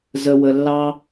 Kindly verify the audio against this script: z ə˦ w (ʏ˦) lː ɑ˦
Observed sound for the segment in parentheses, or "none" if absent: ə˦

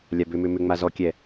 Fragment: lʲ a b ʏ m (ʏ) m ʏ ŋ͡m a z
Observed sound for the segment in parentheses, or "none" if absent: ʏ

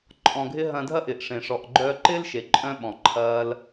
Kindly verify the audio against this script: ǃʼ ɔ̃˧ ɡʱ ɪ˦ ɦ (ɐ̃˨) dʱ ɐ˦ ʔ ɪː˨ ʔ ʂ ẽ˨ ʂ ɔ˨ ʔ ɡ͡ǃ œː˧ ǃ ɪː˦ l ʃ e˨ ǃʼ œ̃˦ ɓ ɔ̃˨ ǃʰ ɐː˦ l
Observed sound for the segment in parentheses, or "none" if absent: ɐ̃˧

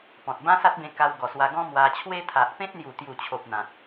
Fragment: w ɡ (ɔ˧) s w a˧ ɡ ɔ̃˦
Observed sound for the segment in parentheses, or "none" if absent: ɔ˨˩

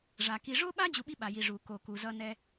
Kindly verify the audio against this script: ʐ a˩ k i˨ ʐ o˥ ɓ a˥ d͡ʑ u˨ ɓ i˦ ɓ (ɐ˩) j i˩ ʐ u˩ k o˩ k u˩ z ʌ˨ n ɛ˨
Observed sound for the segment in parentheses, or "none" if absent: a˩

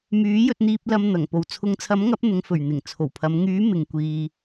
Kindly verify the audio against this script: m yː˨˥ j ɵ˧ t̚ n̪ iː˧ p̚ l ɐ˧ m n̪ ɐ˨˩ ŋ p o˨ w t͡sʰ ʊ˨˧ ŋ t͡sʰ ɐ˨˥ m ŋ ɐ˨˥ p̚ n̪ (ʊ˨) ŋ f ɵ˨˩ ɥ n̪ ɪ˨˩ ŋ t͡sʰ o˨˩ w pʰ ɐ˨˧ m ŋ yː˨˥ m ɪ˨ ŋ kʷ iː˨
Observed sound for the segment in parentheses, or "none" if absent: ʊ˨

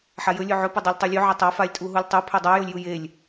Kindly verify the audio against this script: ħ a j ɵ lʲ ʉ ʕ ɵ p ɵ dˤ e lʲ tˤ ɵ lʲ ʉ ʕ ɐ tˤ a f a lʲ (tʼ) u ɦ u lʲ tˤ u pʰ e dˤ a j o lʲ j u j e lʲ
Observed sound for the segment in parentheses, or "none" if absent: tʼ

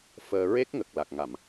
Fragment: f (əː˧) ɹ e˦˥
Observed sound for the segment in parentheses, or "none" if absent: əː˧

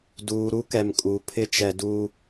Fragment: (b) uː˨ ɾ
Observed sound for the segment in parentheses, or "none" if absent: d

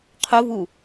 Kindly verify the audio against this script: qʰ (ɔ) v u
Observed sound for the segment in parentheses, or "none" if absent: o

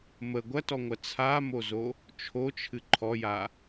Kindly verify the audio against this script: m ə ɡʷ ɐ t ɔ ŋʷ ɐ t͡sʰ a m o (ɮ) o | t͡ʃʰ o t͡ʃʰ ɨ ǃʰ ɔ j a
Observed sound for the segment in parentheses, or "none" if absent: z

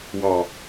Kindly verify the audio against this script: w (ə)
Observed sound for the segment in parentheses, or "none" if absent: ɑ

